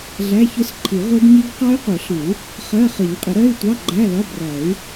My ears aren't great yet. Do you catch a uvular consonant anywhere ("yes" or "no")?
yes